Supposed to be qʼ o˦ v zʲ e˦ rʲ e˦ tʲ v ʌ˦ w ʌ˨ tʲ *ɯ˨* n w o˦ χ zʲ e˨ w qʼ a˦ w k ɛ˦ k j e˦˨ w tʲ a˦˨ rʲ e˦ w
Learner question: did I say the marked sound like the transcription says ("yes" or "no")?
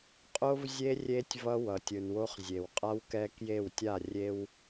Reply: yes